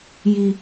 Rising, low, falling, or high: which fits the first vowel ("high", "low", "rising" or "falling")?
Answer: high